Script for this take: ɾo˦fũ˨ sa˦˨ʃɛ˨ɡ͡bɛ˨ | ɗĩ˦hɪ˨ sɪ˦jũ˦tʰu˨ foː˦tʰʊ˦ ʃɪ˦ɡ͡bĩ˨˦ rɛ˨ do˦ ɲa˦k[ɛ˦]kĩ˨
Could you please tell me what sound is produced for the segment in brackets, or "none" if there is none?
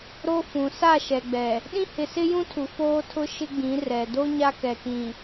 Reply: ɛ˨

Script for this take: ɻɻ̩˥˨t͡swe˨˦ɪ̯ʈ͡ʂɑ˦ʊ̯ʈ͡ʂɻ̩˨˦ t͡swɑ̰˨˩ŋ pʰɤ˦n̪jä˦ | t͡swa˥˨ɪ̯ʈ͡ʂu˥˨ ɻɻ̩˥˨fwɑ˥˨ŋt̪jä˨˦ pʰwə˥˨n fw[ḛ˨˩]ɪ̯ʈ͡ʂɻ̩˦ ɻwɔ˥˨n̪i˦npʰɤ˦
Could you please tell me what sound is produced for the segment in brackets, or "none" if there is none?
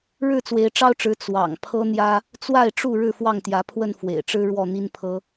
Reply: ḛ˨˩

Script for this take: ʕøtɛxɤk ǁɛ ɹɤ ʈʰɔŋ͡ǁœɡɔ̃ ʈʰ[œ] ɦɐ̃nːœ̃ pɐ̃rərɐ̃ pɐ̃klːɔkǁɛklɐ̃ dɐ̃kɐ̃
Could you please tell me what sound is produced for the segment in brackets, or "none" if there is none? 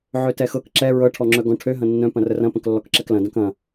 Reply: ø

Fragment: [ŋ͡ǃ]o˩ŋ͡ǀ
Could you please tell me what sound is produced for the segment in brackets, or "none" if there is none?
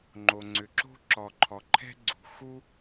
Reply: ŋ͡ǃ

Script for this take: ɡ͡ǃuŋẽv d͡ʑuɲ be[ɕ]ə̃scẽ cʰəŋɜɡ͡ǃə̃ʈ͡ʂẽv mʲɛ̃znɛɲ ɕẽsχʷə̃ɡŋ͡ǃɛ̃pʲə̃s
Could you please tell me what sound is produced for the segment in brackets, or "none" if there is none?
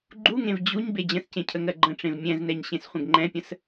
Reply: d͡ʑ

